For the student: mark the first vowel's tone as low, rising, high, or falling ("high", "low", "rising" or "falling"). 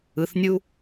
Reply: low